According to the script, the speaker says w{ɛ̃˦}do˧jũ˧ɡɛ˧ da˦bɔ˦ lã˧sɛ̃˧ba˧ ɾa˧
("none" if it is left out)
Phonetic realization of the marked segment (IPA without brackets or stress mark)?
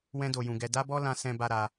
ɛ̃˦